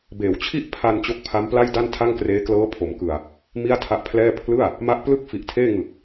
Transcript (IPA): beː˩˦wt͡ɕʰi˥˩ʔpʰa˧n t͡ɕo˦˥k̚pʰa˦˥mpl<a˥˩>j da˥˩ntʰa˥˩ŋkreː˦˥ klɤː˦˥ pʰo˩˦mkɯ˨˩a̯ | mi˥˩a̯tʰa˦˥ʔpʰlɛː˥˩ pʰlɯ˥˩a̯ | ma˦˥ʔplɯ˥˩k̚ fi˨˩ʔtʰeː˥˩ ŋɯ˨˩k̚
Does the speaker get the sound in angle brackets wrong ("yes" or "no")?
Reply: no